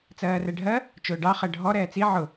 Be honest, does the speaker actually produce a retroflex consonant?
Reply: yes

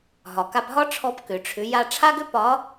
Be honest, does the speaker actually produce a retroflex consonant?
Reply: yes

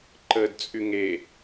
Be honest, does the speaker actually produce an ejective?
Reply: yes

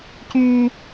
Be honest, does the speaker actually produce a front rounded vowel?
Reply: yes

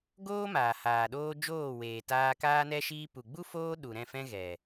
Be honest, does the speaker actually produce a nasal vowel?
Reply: yes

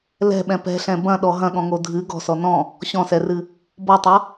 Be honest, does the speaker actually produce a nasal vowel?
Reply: yes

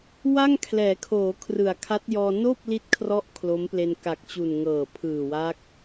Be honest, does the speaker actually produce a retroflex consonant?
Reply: no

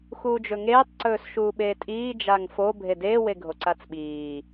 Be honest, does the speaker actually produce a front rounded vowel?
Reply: no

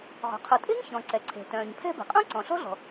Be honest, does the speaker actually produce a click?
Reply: yes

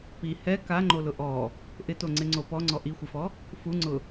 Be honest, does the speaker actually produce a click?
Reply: yes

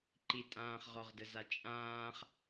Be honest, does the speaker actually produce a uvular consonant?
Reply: yes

